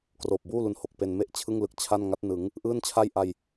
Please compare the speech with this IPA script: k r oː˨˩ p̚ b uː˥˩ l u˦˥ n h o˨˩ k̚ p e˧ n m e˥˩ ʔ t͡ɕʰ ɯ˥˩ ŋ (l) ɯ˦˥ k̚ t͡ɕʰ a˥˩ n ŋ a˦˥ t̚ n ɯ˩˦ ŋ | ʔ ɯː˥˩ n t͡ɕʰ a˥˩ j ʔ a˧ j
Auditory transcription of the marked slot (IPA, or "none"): l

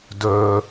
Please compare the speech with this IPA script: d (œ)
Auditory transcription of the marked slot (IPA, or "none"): œ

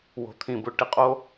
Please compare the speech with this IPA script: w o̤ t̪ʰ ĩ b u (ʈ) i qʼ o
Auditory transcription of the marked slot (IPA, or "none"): ʈ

